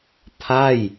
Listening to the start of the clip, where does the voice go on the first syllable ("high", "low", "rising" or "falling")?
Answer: falling